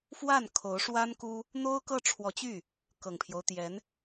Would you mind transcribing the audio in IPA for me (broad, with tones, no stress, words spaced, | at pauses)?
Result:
fwa˥˩n kʰo˧˥ʊ̯ʂwa˥n ku˥ | n̪o˥ʊ̯kɤ˥˩ʈ͡ʂʰwɔ˧˥t͡ɕy˥˩ | kɤ˨˩ŋpʰjo˦ʊ̯t̪jɛ˧˥n